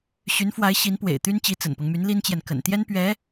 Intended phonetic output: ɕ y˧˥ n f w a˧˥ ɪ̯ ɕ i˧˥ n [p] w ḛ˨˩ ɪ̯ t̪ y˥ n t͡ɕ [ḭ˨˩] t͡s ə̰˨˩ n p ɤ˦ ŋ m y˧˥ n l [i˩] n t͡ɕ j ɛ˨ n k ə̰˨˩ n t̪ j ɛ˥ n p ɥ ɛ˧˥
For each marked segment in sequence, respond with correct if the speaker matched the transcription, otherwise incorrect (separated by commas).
correct, incorrect, incorrect